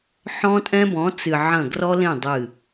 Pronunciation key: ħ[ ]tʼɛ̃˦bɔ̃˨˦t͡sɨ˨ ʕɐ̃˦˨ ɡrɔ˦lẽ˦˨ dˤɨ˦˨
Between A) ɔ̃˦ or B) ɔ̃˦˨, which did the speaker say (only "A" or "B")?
A